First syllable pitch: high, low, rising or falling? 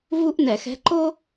high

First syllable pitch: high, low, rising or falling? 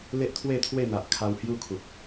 high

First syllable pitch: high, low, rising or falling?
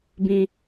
low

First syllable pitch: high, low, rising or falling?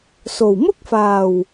low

